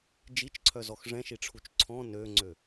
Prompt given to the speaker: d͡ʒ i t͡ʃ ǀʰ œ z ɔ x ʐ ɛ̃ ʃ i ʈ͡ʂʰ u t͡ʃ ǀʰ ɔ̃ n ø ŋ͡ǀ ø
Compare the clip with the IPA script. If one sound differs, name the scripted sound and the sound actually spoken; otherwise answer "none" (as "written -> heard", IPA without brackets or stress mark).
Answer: none